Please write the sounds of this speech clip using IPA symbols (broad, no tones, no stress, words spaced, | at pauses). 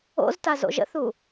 o̰zta zo̰ʒə̰θu